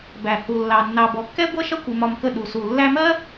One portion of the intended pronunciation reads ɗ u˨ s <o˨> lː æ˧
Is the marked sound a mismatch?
yes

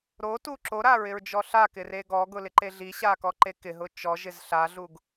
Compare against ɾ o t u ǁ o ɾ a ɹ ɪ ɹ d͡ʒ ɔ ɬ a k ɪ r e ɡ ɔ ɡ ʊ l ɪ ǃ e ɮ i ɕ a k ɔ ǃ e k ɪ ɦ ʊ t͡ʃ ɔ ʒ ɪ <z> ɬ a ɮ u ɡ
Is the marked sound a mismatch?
no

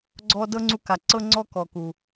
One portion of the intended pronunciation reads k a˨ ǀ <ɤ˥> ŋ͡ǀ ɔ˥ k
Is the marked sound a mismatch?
no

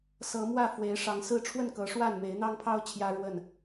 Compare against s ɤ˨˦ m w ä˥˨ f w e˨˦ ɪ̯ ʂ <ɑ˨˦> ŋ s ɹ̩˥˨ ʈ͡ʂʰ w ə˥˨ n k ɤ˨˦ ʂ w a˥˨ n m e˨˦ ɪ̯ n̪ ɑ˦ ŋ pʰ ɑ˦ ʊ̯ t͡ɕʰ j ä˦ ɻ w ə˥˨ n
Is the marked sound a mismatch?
no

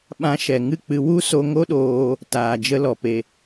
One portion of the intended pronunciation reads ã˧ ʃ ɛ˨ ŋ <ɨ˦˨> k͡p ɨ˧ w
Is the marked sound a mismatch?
no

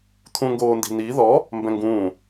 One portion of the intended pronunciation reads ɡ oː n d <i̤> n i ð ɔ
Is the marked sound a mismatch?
no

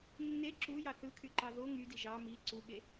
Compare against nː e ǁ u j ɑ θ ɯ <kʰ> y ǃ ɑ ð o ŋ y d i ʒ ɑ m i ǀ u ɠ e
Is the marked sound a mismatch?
no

